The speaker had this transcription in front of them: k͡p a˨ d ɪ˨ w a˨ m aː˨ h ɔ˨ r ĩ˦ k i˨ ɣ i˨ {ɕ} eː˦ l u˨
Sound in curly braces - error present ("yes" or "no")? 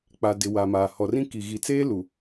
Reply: yes